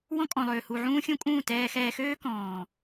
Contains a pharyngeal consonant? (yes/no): yes